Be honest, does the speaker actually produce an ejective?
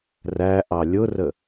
no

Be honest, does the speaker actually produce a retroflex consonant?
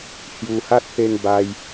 no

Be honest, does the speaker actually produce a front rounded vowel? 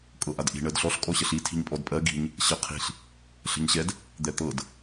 no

